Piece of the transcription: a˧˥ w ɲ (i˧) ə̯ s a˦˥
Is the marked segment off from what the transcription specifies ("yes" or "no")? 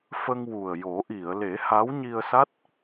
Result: no